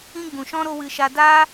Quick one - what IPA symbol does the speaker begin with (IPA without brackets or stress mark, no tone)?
ĩ